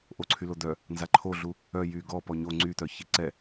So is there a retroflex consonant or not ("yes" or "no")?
no